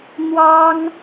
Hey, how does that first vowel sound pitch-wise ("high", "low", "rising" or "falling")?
high